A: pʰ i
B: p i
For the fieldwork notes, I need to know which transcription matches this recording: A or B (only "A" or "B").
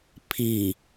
A